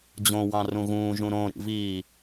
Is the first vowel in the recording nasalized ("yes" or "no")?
yes